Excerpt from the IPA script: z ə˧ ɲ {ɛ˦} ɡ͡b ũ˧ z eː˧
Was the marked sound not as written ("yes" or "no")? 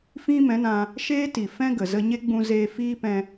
yes